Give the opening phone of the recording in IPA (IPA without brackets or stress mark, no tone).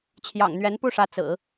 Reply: t͡ɕʰ